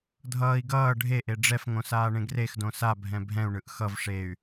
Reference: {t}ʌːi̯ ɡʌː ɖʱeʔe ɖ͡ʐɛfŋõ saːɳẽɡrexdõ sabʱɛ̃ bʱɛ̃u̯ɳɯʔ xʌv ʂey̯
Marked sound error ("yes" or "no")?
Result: yes